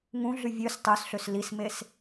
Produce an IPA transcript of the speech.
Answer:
ŋ ũ ɮ y vʲ ø s tˤ ø s ɬ ø s l i s m e s

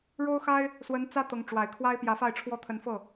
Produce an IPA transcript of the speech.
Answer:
ɻ o˥ ʊ̯ x a˥ ɪ̯ | s w ə˧˥ n t͡s ä˥ t̪ ɤ˧˥ ŋ ʈ͡ʂ w a˨˩ ɪ̯ kʰ w a˥ ɪ̯ p j ä˧˥ f a˥˩ ɪ̯ ʈ͡ʂʰ w ɔ˥ t̪ʰ ə˧˥ n f ɤ˥˩

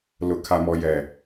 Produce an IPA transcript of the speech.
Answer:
l ʊ˨ kʰ a˨ m ɔ˨ j ɛ˨

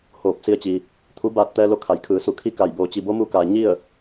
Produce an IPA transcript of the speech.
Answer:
h oː˧˩ p̚ s i˧ ə̯ t͡ɕ i˩ | t̪ʰ u˧˥ b aː˧ t̚ t̪ ɛː˧ l o˧˥ kʰ a˩˧ j kʰ ɯː˩˧ s u˧˩ kʰ i˥˨ k a˧˩ j b o˩˧ t͡ɕ i˩˧ b o˧˥ m u˧ k aː˩ ɲ i˥˨ ə̯

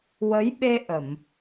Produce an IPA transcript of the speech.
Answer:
w ə˧˥ j ɓ e˧ ʔ ə˨˩˨ m

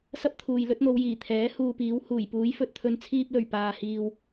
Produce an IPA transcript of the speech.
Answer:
s ɐ˥ p̚ t̪ʰ uː˨ j l ɵ˨˥ t̚ n̪ o˨˧ w j iː˨˩ t̪ʰ ɛː˨˥ h uː˧ p iː˨˥ w h uː˨˩ j p uː˨˥ j f ɵ˨ t̚ t̪ʰ ɵ˧ n t͡sʰ iː˧ p̚ l ɵ˨˩ ɥ p aː˨ h iː˨ w

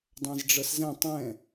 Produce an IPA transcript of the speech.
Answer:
dˤ ã z ɖ͡ʐ ɤ s z ɛ̃ tˤ ɛ̃

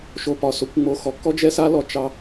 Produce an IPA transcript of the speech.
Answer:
ʃ o˧ p ɒ˨ s o˧ kʷ ŋ͡m o˧ x ɔ˨ k ɔ˦ d͡ʒ ɛ˦ s a˦ l ɔ˨ t͡ʃ ɑ˧

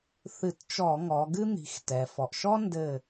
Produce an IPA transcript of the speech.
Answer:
θ ɨ˧˩˧ t t͡ʃ ɔ˧˩˧ ŋ ɔ˩˧ ɡ ɨ˥ n̪ i̤˩˧ x t ɛ˩ f ɔ˩ ʔ ʃ ɔ˥ n d ɘ˦˨

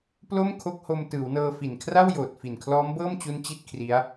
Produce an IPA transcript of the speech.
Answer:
p l o˥˩ m kʰ o˦˥ k̚ h o˧ m t ɯː˩˦ w n ɤː˧ f i˨˩ n kʰ r a˥˩ w j oː˨˩ t̚ f i˨˩ n kʰ l ɔː˦˥ m b ɤː˥˩ m t͡ɕ u˦˥ n t͡ɕ i˥˩ t̚ kʰ r i˦˥ a̯

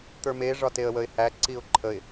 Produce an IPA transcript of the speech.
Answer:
t̪ ə˞ m e ʐ ɒ t e ə̯ w ə ɪ̯ h æ ǀ i ʊ̯ ǃʰ ə ɪ̯

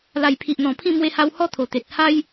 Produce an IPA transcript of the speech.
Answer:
l a˨˩ j pʰ i˨ ʔ n̪ ɔ̃˨˩ pʰ ĩ˥˧ m w e˧ h a˧ w h ɔ˦ t̪ʰ o˨˩ t̪ e˨ t̚ h a˦ j

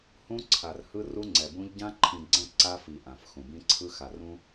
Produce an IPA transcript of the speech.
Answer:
h ũ˦ ǀʰ a˨ r h ɯ˦ r u˦ ŋ͡ǀ ɛ˨ b ũ˦ ʎ ɟ ã˦ ǃʰ ĩ˨ ɡ͡ǀ ɛ̃˦˨ ǀ a˦ f i˨ ʔ ã˨ f x ũ˨ b ĩ˦ ǀʰ ɯ˦ x a˨ r ũ˦

